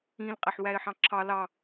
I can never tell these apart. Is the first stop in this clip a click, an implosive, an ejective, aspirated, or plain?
ejective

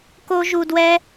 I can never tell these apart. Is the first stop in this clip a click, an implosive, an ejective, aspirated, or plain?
plain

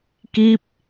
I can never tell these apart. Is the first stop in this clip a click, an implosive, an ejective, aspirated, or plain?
plain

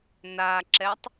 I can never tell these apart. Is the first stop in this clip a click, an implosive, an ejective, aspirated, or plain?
click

